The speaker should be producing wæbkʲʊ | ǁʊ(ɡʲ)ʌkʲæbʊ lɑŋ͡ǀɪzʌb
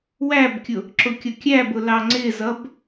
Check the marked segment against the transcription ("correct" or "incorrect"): incorrect